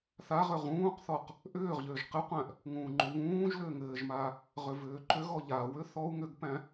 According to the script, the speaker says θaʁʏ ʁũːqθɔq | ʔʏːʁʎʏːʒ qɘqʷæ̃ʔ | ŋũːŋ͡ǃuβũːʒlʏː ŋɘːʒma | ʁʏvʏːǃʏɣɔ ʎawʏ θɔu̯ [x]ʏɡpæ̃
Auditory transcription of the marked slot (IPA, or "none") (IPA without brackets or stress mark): ŋ